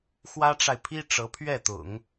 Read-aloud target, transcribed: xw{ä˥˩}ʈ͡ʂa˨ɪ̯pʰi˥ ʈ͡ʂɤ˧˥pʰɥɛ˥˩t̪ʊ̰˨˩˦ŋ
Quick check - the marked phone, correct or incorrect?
incorrect: ä˥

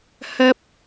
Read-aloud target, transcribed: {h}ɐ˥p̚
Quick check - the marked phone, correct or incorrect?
correct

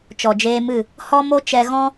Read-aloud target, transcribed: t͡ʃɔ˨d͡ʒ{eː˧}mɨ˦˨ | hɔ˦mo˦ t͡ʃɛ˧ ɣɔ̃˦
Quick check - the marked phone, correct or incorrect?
correct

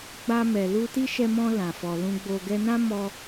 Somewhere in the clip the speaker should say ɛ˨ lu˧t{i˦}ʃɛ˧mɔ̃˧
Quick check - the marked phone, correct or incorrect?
correct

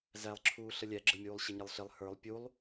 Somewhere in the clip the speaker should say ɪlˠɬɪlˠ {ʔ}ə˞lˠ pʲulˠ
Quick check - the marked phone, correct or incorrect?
incorrect: h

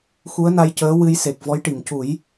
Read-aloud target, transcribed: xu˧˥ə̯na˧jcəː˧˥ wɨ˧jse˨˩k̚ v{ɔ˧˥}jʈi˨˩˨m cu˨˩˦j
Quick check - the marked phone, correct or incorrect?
correct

